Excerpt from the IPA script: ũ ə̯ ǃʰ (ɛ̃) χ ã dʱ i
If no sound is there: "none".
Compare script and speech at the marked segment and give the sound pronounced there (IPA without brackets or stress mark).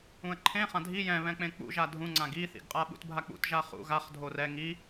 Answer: ẽ